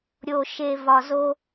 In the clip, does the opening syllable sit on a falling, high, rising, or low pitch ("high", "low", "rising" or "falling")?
low